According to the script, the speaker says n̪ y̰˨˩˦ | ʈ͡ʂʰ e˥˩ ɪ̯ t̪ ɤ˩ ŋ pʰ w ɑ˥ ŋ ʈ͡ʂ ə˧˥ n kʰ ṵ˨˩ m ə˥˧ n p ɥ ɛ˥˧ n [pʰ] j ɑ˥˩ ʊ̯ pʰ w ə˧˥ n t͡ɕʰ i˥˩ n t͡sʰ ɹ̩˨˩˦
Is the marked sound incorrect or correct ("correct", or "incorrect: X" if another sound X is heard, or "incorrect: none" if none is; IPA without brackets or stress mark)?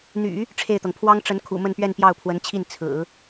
incorrect: p